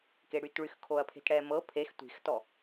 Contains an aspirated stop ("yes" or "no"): yes